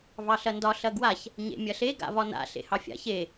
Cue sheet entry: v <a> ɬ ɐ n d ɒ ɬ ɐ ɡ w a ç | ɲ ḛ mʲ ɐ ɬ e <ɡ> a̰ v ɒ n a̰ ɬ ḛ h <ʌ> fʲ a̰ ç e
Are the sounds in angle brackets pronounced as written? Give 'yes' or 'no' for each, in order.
no, yes, no

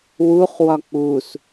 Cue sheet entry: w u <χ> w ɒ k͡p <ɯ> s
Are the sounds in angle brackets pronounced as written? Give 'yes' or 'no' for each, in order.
yes, no

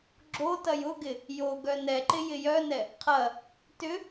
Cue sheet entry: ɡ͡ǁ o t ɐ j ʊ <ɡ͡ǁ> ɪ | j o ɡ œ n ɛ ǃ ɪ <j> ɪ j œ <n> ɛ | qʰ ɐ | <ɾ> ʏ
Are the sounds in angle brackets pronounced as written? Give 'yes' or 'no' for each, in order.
no, yes, yes, no

